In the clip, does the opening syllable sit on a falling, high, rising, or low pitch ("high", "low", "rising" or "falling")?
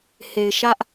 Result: low